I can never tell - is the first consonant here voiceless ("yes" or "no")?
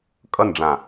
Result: yes